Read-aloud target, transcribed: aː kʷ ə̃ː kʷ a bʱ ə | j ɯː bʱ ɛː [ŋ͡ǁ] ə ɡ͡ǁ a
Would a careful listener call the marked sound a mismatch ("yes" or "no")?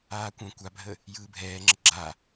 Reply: no